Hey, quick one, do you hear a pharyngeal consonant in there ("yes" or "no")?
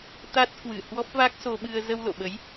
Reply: no